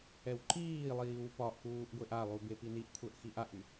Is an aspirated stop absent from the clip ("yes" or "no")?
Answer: no